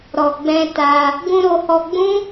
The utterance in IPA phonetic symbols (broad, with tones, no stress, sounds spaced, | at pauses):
ɾ ɔ˨ ɡ͡b ɛ̃˧ t a˧ | ɡ ũ˧ ɾ o˧ h ɔ˧ ɡ͡b ũ˦